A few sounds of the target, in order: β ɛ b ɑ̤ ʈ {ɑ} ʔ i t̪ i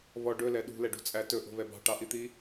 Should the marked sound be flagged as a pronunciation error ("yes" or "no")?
no